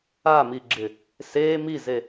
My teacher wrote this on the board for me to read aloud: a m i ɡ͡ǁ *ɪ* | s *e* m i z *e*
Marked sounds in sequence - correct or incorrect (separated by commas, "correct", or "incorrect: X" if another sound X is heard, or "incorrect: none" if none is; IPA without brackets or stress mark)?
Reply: correct, incorrect: eː, correct